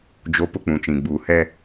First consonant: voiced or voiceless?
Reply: voiced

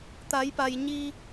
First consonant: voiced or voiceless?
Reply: voiceless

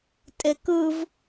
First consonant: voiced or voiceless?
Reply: voiceless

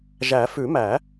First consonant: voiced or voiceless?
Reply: voiced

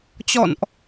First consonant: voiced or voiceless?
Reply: voiceless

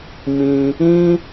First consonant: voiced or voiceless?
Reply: voiced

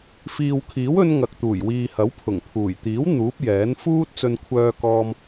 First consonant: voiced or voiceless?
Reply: voiceless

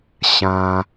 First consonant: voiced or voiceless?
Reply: voiceless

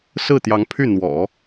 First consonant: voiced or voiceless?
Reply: voiceless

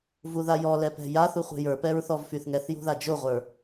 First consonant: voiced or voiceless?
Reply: voiced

